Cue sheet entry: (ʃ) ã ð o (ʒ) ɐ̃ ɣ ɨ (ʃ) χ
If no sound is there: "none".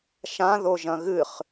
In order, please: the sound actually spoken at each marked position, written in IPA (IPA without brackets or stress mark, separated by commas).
ʃ, ʒ, none